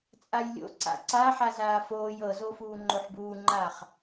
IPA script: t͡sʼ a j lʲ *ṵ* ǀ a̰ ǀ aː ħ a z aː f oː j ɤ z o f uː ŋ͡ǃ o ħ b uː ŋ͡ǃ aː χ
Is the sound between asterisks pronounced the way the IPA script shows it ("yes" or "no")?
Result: no